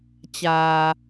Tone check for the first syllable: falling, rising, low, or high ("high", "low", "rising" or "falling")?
low